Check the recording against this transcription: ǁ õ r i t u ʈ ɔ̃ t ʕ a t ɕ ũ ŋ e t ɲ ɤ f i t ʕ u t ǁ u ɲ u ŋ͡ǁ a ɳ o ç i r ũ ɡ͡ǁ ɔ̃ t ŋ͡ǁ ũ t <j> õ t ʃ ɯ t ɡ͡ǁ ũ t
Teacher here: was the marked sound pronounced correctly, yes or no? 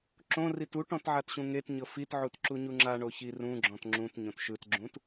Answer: no